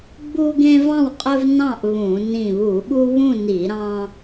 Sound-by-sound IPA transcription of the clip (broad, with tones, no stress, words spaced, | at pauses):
ɡ͡bu˦ɡẽ˦vɑ̃˥˨wqʼɵ˦v nɑ̃˥˨ʔ βũ˧˩˧ nĩ˧˩βu˧˩˧ɓu˦ βũ˥˨ni˧˩˧ ɾɑ̃˦